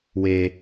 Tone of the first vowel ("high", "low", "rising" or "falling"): high